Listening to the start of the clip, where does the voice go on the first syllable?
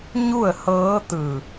falling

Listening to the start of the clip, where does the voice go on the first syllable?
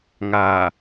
low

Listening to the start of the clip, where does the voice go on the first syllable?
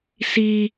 high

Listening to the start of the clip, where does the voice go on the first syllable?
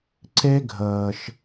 high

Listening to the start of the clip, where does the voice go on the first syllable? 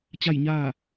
falling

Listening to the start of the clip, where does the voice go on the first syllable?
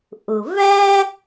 low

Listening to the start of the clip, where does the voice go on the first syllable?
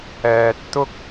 high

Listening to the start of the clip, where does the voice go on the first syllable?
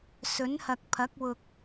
rising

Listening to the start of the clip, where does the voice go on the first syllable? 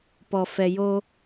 low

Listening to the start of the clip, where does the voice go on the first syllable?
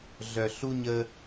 low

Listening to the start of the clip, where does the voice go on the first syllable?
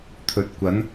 low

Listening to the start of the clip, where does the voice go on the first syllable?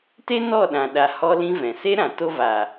high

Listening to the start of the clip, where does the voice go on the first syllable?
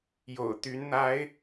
low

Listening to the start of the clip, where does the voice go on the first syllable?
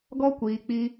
high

